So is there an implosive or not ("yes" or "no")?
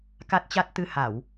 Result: no